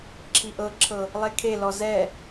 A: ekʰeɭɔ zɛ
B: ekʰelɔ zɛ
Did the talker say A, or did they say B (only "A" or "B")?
B